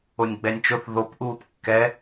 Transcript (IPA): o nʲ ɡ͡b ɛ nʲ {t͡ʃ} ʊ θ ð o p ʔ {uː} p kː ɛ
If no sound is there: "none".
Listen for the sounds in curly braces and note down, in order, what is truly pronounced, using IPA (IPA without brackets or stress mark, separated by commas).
t͡ʃ, uː